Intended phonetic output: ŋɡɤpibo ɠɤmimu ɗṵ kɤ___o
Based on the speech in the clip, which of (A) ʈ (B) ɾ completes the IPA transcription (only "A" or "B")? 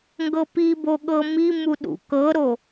B